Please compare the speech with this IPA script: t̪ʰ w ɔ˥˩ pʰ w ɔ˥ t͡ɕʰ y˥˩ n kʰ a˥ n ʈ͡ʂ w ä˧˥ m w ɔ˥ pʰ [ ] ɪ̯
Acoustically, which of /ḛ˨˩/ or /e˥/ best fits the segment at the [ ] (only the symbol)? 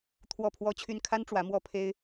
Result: e˥